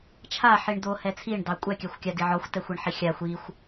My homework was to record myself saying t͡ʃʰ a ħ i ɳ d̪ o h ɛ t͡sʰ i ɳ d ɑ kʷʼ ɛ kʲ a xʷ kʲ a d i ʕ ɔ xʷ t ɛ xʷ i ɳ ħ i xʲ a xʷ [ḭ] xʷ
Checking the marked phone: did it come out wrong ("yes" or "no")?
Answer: yes